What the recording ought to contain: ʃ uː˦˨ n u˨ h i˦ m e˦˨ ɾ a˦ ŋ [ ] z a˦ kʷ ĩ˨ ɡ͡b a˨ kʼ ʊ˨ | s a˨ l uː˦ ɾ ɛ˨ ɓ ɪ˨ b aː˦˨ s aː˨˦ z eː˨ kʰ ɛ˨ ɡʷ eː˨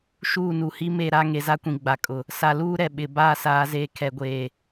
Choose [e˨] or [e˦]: e˨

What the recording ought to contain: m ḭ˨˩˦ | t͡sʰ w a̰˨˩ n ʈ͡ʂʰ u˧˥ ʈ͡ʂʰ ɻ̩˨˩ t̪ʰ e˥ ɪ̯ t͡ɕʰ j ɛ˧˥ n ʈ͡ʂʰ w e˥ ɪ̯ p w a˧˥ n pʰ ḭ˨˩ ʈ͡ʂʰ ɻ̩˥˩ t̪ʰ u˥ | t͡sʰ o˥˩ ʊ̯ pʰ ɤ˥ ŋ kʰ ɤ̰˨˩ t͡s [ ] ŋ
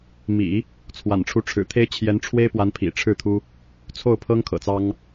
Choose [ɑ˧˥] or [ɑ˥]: ɑ˥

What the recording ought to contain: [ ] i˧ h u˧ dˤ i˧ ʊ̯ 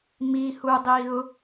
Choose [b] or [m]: m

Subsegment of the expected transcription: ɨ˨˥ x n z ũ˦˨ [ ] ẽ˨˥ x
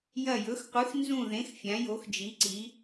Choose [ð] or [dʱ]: ð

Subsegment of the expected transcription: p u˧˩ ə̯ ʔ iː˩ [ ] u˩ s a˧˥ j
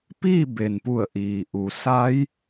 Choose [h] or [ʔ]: ʔ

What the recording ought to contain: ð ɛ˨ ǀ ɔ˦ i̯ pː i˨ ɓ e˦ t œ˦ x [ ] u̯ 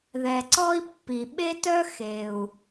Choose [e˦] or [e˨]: e˨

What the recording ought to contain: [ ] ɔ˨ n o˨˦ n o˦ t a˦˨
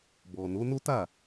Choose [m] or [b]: b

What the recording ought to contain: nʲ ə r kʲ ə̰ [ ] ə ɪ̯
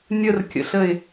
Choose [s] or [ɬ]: ɬ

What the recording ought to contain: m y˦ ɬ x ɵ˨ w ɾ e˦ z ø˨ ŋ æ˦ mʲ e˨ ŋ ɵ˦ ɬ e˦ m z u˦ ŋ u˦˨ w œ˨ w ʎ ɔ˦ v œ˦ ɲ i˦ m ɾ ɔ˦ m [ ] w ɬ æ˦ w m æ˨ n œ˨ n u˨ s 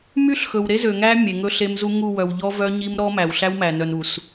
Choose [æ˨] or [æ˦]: æ˨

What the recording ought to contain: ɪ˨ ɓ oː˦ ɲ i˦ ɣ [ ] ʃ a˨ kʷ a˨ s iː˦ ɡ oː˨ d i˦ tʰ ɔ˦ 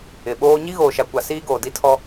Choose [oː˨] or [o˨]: oː˨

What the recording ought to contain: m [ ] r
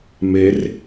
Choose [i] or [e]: e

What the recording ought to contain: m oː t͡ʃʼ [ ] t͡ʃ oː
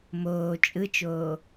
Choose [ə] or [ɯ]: ɯ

